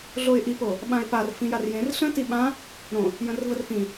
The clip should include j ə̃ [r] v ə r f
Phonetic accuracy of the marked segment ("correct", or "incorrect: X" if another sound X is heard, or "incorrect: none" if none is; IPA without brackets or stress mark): correct